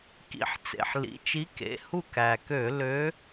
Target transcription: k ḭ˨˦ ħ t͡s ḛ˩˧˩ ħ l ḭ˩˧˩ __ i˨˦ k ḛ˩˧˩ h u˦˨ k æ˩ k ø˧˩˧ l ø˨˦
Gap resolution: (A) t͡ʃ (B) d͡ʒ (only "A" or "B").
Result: A